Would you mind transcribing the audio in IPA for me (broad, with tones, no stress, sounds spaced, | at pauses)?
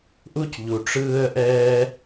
ʔ u˥ c ʎ u˩ ʈ͡ʂ ɯː˦ ə̯ ʔ ɛː˦